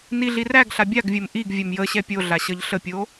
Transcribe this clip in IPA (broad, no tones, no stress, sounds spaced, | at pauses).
n i ɮ i r æ ɡ ɬ a bʲ a ɡ vʲ ə m ʔ i ɡ vʲ ɛ m j ə ɕ ɛ pʲ o ɮ a ɕ ʌ ʎ ɬ ə pʲ o